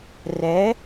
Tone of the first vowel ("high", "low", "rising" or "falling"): rising